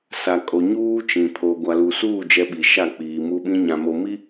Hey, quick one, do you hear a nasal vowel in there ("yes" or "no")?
yes